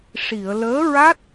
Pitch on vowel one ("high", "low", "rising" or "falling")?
low